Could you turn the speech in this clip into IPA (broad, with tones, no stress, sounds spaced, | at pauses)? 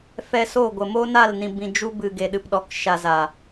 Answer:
f ɛ˧ s o˦˨ ɡʷ ə˨ m o˦ n a˦˨ l n ĩ˨ b ĩ˨ d͡ʒ u˧ b ɨ˨ ɡ e˨ ɗ ɨ˨ p ɗ ɔ˨ k ʃ a˧ z a˨